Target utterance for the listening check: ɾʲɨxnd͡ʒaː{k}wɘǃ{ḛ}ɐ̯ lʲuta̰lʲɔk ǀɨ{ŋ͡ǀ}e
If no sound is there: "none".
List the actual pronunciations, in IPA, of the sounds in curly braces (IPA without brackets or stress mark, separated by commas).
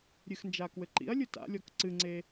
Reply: k, ḭ, ŋ͡ǀ